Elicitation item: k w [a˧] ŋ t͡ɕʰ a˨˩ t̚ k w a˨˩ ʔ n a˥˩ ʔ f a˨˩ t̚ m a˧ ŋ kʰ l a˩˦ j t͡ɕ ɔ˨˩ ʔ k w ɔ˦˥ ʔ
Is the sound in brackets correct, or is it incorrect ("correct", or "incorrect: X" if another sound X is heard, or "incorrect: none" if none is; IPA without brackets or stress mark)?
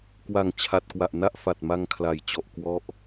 incorrect: a˨˩